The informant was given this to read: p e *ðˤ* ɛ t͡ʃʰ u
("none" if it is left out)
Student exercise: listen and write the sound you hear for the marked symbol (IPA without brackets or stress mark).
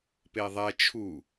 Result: ðˤ